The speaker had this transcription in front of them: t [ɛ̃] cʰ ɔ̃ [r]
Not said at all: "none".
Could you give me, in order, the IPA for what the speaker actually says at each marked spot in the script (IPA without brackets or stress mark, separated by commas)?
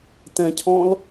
ɛ̃, l